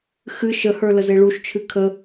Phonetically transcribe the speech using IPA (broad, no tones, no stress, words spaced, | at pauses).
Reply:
xɨ ʃəhə˞ ləzeɭuʃt͡ʃʰɨ kʰə